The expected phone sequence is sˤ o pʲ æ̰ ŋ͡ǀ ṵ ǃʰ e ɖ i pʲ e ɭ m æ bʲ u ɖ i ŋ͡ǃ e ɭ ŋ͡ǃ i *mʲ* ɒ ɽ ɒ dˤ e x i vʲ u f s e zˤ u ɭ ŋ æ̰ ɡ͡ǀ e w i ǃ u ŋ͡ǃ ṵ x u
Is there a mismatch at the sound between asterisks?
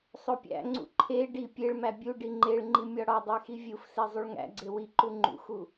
no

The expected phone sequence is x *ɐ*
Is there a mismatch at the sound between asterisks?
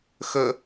yes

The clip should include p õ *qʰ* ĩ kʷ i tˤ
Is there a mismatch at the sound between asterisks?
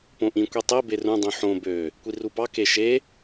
yes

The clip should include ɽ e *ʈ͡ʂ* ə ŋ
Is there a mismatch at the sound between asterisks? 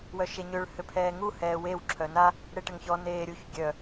yes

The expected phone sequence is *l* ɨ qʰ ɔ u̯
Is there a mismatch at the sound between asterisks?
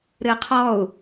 yes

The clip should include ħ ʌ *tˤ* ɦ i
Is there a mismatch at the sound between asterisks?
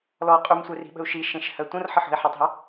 no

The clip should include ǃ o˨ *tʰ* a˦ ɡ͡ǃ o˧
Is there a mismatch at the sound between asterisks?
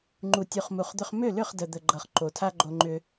no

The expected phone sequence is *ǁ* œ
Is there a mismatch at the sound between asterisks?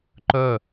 yes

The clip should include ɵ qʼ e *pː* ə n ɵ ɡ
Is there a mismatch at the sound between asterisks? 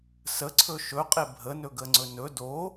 yes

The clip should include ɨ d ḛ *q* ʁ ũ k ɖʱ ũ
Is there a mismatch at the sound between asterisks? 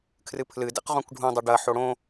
no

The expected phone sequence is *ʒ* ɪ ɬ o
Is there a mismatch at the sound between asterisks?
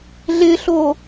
yes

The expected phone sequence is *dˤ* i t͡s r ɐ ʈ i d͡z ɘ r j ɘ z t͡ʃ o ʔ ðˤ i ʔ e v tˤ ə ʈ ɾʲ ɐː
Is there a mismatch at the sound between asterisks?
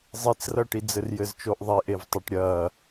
yes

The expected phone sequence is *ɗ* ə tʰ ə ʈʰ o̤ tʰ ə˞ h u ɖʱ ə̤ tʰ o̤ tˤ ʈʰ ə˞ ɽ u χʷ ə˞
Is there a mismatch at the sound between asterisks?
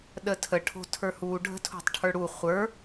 no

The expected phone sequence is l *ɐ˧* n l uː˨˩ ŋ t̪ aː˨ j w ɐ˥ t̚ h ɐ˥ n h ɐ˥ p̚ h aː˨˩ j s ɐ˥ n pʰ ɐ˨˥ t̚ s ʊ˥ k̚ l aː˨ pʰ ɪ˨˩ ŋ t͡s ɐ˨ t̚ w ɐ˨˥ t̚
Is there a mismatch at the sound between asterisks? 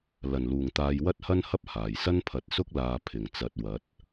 yes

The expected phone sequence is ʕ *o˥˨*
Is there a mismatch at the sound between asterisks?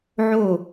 no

